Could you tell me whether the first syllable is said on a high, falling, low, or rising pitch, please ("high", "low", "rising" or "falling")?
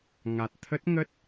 low